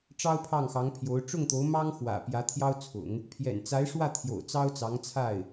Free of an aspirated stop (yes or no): no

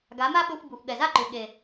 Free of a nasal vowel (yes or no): yes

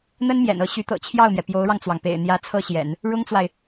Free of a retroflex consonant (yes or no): no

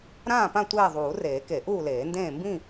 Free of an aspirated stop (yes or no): yes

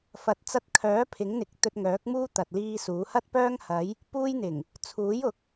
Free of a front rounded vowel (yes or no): no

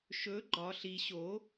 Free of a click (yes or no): no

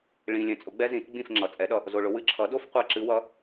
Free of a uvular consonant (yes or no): no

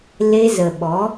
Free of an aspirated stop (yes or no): yes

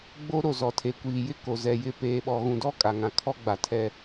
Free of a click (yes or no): yes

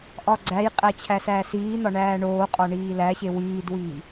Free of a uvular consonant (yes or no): no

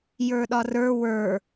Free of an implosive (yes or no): no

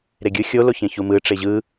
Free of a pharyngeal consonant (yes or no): yes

